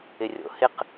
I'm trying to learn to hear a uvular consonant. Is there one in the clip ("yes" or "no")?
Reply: yes